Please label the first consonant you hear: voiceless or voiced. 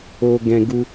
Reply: voiced